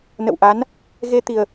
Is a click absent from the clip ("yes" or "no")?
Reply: yes